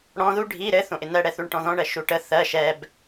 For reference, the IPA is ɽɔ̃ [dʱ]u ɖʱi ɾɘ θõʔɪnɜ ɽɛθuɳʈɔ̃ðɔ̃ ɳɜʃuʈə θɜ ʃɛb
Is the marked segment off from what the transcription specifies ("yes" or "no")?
yes